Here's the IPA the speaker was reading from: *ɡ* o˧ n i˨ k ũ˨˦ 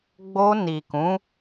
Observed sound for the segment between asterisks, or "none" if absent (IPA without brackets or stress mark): ɡ͡b